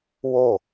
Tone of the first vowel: falling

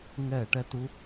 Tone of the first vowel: falling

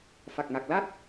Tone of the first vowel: low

